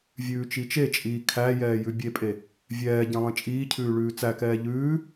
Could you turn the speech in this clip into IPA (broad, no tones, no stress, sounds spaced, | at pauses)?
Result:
vʲ ʉː t͡ʃ i t͡ʃ e t͡ʃʼ iː kʰ æ j ɛː j ʉ bʲ e pʼ e | vʲ ɛː ɟ ẽ lˠ ẽ t͡ʃʼ iː cʰ ʉː ɭ ʉː t͡s æ k ɛː ʎ ʉː